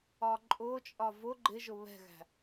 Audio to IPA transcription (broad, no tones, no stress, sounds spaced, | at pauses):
ɒ ǃʼ ʊ t͡ʃʼ ɒ v ʊ ɡ͡ǃ ɪ ʒ ʊ β ɛ̤ ɣ æ̤